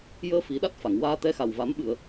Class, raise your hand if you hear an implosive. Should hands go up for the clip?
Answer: yes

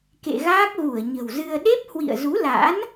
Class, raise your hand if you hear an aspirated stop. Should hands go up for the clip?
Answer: no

